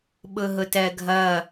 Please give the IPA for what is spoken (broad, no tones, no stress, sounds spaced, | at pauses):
ɓ ʊ ɦ ʊ t ɜ ɡʱ ʌ